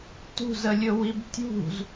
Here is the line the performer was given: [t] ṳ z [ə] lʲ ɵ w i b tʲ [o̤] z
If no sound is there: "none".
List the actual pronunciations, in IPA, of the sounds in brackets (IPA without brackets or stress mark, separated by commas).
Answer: t, ə, ṳ